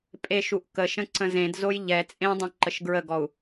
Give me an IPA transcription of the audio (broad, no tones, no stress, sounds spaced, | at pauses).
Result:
pʼ e ʃ u ʔ k ə ʃ ə̃ ǀ ə̃ z ẽ d z o j ʎ ɛ t͡sʼ ẽ dˤ ũ ǃ ə ʃ ɡ ɹ ə ɡ ɔ u̯